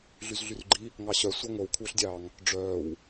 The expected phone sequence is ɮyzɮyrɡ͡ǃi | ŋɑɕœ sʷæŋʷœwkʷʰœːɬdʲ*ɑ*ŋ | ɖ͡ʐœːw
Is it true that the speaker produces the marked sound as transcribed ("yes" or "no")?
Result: no